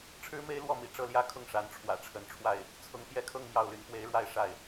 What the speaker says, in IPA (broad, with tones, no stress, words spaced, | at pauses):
ʈ͡ʂʰɻ̩˥me˥ɪ̯lwɔ˥˩mḭ˨˩ ʈ͡ʂɤ˥˩ljä˥kʰʊ˥˩ŋ ʂa˧˥nʈ͡ʂʰwä̰˨˩ʈ͡ʂʰə˧˥nʈ͡ʂʰwa˥˩ɪ̯ | t͡sʰʊ˧˥ŋ pjɛ˥kʰɤ˥˧ŋ mjɑ˥˩ʊ̯ly˧˥n pwe˧˥ɪ̯ɻwa˥˧ɪ̯ ʂa˥˩ɪ̯